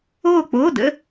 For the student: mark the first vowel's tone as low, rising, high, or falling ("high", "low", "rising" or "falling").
falling